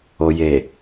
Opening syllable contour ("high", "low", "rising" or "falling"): low